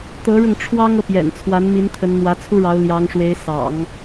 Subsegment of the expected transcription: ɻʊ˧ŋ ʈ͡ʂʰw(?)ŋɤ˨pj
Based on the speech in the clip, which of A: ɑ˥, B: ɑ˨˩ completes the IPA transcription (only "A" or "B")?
A